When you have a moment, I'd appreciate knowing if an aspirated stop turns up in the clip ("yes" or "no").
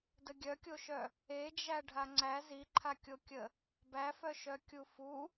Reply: yes